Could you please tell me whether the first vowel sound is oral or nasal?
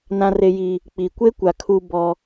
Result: nasal